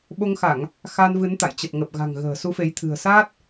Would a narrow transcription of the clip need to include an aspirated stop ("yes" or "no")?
yes